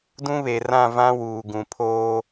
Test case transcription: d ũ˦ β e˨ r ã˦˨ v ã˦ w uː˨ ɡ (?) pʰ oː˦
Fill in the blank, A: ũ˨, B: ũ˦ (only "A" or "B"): A